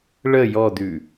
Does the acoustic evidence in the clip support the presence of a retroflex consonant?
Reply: yes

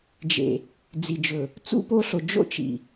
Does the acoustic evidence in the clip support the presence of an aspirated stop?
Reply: no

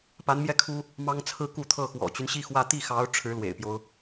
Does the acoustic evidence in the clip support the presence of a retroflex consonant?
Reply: yes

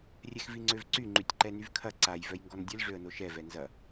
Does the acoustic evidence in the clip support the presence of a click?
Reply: yes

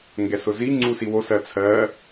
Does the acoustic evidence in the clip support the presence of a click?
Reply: yes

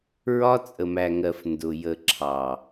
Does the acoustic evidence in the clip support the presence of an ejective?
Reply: yes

